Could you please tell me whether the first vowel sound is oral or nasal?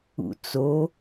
oral